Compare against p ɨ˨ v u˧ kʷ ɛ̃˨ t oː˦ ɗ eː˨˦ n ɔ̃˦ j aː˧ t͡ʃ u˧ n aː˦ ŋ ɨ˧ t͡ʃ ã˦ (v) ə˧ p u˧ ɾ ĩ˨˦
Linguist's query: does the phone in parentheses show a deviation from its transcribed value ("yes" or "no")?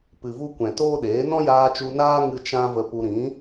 no